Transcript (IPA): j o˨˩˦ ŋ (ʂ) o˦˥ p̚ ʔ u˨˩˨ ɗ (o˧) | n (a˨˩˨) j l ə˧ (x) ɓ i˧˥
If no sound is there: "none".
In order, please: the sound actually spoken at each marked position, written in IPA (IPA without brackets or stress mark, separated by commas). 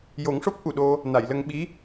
ʂ, o˧, a˨˩˨, ŋ